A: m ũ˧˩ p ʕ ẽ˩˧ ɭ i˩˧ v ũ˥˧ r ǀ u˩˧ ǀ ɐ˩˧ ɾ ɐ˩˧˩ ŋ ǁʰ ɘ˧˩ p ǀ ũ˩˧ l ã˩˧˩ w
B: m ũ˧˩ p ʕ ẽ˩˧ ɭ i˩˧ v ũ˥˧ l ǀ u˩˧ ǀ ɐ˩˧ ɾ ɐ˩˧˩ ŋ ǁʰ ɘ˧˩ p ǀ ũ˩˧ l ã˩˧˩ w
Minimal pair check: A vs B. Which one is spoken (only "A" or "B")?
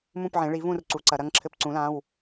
A